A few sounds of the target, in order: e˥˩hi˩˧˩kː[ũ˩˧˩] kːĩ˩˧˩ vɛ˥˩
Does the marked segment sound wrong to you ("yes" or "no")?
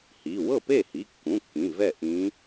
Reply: no